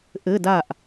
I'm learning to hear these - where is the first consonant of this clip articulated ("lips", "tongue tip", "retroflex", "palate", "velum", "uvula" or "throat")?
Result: throat